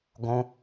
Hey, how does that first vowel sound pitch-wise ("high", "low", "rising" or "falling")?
high